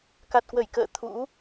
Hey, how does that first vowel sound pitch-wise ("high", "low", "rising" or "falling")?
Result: low